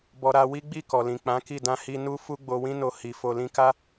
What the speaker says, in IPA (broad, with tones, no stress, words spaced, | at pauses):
bɔ˧ ɾa˧ wi˦ɡ͡bi˦˨ kɔ˨lĩ˨k͡pã˨˦ki˦˨ dã˧hi˧ nu˧ fu˧ɡ͡bo˨wĩ˧no˨ hi˨ fo˨lĩ˧ka˦